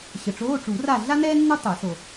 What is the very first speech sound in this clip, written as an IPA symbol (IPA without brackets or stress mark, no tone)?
ɕ